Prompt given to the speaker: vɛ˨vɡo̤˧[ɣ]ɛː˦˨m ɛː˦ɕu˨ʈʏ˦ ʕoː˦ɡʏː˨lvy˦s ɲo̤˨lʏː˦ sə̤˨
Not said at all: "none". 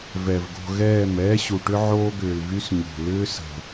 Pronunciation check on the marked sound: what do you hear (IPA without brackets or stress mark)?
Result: ɣ